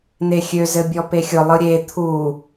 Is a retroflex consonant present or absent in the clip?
absent